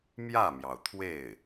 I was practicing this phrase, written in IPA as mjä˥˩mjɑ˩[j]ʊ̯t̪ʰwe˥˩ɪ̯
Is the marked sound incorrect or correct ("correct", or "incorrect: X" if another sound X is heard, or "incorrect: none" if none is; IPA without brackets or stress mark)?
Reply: incorrect: none